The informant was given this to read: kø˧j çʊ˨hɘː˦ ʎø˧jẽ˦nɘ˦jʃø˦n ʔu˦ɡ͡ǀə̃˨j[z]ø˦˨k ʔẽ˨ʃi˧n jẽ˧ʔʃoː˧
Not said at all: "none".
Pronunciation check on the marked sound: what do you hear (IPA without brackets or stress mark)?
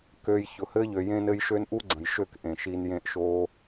ʃ